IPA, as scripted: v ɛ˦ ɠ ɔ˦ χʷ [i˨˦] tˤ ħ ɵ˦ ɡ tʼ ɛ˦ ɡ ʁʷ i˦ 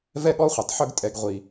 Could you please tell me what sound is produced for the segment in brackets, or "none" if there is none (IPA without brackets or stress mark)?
i˨˦